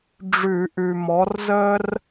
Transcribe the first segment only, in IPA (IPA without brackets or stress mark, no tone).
ɖ͡ʐ